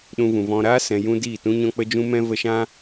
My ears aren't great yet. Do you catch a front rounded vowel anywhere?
no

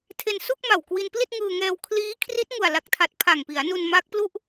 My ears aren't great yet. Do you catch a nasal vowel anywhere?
no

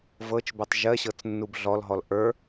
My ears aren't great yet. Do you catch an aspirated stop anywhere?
no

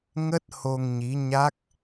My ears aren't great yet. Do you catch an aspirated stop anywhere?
no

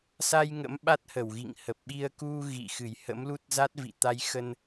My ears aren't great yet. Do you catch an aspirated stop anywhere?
no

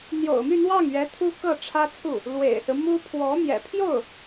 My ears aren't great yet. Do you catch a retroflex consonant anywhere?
yes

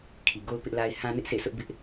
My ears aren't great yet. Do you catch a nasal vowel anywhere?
yes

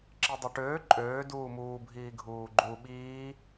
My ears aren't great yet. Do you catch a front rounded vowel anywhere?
yes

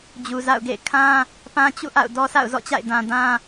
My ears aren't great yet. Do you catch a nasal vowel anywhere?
yes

